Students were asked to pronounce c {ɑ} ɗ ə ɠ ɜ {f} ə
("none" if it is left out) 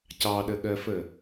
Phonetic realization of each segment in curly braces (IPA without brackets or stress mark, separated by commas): ɑ, f